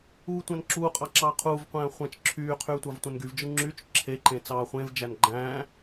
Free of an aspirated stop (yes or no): no